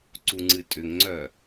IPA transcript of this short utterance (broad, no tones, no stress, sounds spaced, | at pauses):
ǀ u ŋ͡ǀ ɨ tʼ ʏ ŋ ŋ͡ǀ œ